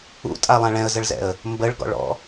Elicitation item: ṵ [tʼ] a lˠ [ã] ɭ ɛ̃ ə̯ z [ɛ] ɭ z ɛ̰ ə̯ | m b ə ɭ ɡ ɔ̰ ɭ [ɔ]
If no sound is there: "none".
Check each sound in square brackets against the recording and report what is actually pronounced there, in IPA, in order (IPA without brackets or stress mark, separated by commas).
tʼ, ã, ə, ɔ̰